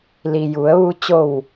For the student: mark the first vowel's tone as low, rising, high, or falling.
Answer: low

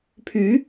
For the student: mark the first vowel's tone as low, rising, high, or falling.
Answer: rising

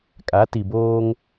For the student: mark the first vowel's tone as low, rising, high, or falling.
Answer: rising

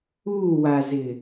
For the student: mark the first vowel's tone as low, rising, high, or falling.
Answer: falling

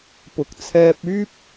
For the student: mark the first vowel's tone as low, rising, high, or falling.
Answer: low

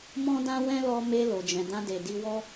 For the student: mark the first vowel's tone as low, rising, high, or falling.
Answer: high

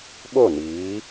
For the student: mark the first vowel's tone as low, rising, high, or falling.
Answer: falling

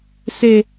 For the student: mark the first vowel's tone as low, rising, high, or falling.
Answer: low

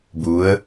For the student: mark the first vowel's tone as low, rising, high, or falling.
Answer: rising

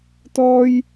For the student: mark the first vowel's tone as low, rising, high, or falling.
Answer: high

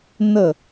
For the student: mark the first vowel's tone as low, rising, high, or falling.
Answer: falling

